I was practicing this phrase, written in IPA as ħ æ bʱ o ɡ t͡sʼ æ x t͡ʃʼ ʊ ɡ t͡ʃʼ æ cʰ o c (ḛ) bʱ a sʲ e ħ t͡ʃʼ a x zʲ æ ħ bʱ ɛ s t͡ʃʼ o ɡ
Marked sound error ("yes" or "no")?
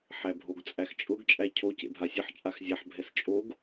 no